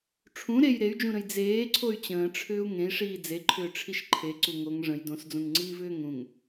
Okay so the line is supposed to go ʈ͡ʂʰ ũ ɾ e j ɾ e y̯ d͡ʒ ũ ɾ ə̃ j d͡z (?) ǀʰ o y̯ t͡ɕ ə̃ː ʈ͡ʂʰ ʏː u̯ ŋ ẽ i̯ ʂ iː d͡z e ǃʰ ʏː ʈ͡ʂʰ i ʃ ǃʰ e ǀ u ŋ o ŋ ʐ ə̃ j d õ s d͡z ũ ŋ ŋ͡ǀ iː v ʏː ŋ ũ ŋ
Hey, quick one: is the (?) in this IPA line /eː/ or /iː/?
eː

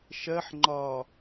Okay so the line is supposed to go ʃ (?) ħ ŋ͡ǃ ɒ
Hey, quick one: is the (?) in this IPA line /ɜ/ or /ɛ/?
ɜ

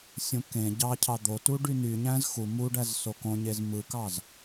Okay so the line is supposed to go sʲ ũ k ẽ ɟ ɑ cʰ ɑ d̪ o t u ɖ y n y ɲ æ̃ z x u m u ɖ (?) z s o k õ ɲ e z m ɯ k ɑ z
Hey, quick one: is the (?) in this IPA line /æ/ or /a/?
æ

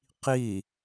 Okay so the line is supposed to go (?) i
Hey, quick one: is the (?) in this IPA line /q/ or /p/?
q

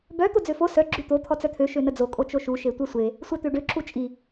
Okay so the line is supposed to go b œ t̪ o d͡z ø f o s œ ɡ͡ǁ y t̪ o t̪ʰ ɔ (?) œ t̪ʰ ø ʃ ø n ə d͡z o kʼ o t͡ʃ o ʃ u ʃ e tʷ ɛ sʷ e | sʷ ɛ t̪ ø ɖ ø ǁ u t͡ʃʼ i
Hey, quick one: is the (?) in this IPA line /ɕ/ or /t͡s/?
t͡s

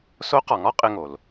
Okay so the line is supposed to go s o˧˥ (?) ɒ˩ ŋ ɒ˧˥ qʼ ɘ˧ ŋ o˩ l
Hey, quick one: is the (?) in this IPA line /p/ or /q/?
q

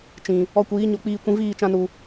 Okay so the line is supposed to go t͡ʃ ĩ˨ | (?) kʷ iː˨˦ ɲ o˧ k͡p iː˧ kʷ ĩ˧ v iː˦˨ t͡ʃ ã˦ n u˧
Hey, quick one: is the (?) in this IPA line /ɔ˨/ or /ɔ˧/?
ɔ˧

